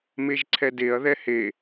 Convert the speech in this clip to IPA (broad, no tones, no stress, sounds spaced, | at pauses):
m e ʒ ǀʰ ɛ d e ɐ̯ ð ɛ h e